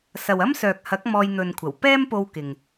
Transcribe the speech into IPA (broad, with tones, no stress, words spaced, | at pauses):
sɐ˨wɐ˥msœː˨k̚ hɐ˨˥k̚ mɔː˧jn̪ɵ˨nkʷʰɐ˨˩w pɛː˥mpo˧w kɪ˨ŋ